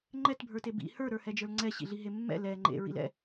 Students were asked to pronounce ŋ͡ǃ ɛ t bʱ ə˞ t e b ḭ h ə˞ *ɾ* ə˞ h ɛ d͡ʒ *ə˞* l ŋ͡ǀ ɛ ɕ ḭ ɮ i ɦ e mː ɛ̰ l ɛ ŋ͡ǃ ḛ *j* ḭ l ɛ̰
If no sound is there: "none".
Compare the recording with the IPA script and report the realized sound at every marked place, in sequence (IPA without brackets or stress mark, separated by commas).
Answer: ɾ, ə˞, ɹ